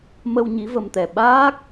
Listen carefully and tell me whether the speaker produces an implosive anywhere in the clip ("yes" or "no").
yes